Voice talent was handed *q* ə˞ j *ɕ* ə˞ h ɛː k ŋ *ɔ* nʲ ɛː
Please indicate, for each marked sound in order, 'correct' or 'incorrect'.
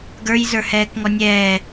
incorrect, incorrect, correct

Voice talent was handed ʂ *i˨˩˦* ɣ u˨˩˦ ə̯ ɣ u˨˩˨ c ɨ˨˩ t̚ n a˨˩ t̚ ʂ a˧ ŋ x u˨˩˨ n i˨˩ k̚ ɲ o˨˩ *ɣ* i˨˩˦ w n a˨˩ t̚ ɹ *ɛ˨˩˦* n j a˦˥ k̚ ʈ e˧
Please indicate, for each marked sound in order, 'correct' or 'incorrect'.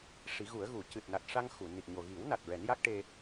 correct, correct, correct

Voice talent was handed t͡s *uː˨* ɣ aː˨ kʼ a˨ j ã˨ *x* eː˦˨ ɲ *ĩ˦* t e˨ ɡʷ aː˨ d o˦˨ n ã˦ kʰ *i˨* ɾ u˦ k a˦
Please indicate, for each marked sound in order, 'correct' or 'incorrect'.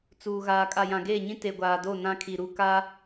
correct, incorrect, correct, correct

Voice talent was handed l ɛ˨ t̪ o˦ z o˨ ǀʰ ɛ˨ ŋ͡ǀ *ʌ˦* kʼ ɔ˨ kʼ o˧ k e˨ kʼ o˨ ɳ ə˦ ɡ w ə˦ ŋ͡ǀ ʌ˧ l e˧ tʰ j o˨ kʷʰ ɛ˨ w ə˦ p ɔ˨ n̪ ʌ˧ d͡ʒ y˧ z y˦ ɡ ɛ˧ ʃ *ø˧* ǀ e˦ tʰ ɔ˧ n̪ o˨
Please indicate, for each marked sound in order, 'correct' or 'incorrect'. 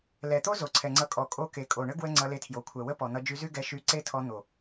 incorrect, incorrect

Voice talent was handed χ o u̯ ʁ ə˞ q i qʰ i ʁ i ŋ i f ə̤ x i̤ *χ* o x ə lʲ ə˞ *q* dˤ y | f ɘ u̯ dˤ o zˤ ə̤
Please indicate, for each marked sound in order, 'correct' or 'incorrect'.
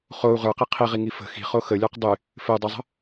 correct, correct

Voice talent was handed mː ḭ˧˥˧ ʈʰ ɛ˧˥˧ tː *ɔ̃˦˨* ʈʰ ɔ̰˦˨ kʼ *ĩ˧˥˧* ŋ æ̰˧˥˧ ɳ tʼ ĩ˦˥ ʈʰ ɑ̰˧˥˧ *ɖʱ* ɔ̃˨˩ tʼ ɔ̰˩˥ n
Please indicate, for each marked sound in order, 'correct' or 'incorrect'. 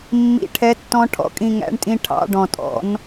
incorrect, incorrect, incorrect

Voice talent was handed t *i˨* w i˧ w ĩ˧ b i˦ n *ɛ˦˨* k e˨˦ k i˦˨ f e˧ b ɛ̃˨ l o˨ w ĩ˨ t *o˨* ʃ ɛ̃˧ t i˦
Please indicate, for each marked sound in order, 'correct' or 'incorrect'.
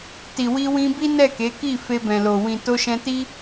correct, correct, incorrect

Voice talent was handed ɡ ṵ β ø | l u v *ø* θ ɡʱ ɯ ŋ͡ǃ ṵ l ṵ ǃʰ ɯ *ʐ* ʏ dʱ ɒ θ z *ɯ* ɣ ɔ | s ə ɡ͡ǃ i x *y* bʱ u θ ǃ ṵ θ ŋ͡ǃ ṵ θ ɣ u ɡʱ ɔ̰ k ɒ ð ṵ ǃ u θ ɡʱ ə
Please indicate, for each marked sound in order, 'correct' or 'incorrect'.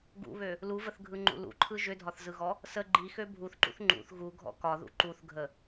incorrect, incorrect, correct, incorrect

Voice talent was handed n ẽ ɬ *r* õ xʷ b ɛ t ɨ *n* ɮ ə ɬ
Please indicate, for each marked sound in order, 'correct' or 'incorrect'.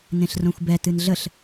correct, correct

